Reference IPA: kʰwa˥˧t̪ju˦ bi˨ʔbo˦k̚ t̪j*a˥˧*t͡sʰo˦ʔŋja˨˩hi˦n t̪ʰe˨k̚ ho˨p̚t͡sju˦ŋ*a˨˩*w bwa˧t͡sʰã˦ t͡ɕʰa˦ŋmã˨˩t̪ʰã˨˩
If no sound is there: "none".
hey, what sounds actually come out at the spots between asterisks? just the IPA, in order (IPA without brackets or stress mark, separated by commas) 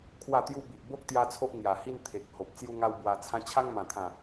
a˦, a˦